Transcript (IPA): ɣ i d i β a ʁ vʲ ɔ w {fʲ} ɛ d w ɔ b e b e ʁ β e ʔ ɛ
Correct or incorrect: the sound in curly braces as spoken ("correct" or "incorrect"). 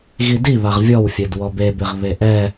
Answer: correct